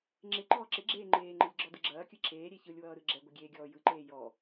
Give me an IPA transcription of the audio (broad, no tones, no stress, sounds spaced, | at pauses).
ŋ͡ǁ ɪ ǃ ɔː ǁ ɪ ɡ͡ǁ eː ŋ͡ǃ eː ŋ͡ǃ e lʲ ɡ͡ǁ ɔ d ɯ ɡ͡ǁ ɐː kʲ ɯ ǁʰ eː ɾʲ e ç ɯ lʲ w ʌː ɾ ɯ ɡ͡ǁ ɛ ɡʷ ɪ ɡʲ eː ɡʲ ɔː j ɯ ǃ eː j ɔ